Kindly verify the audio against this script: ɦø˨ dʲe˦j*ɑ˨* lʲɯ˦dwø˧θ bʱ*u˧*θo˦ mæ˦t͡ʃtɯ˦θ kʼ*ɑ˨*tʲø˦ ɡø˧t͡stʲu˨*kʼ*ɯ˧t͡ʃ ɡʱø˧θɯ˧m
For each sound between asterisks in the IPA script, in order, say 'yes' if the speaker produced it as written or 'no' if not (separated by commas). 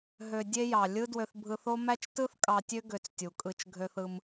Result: yes, no, no, yes